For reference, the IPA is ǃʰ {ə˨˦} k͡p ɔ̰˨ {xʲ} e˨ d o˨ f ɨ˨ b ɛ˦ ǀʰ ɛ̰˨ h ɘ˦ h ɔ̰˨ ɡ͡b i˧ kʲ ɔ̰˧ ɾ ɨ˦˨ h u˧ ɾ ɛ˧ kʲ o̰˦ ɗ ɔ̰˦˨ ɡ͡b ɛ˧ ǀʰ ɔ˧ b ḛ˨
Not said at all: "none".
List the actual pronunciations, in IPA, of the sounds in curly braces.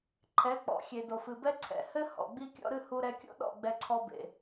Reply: ɛ˨˦, xʲ

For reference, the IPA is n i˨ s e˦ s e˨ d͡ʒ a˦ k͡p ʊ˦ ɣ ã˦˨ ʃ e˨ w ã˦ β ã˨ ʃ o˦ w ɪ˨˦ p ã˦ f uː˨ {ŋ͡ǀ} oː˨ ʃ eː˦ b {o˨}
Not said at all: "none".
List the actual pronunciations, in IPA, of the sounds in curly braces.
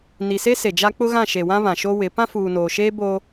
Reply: n, o˦

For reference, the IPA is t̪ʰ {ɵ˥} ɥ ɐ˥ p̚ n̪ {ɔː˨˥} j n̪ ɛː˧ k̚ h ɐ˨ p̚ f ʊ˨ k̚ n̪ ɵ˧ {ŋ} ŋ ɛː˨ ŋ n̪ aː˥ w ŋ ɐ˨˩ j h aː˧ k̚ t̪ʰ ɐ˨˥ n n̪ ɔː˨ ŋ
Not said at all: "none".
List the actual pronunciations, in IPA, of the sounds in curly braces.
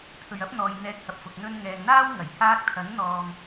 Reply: ɵ˨, ɔː˨, n

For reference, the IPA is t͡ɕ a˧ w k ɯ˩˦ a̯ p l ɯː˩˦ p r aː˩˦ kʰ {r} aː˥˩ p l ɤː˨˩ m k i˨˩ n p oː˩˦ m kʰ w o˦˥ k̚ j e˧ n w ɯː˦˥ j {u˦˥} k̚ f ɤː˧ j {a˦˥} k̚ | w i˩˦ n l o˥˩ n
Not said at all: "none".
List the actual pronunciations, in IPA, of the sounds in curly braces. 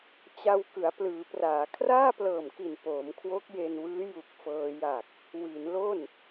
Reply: r, u˨˩, a˨˩

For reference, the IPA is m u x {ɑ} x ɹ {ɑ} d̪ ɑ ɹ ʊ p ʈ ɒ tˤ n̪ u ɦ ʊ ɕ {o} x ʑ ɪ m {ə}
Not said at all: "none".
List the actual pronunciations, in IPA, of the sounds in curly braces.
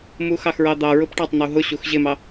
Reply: ɑ, ɑ, u, ɑ

